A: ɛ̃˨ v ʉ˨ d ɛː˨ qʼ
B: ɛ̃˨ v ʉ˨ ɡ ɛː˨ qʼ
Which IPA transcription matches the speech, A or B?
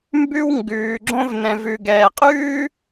B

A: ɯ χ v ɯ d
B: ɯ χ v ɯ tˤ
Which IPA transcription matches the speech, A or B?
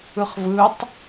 B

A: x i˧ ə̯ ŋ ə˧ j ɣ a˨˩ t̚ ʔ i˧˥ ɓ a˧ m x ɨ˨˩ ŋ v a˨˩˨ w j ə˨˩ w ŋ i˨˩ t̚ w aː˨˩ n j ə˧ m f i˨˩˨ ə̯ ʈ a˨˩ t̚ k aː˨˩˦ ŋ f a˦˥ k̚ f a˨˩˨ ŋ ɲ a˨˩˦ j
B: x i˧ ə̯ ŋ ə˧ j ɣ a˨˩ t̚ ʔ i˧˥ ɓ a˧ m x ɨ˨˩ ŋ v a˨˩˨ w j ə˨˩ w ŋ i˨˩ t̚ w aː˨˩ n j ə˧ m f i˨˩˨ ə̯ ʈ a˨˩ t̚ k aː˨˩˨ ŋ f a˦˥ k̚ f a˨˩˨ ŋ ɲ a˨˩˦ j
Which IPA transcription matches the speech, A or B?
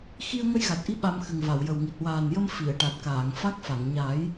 B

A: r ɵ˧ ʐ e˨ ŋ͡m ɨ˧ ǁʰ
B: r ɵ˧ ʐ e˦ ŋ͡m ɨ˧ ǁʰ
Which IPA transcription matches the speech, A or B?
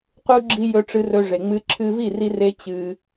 A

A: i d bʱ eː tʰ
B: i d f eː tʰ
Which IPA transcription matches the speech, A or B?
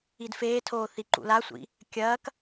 B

